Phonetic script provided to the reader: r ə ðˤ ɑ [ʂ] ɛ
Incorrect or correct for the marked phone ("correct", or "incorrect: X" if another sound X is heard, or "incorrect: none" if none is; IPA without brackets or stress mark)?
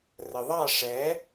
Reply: correct